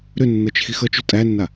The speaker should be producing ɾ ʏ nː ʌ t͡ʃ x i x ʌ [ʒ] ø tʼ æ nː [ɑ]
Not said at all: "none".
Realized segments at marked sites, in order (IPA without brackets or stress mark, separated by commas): t͡ʃ, a